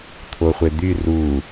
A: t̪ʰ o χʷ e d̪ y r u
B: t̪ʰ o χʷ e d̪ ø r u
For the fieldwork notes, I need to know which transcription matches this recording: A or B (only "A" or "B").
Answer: A